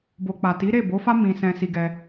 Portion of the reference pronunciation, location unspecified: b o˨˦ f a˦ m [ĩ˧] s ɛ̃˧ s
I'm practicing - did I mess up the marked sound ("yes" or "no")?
no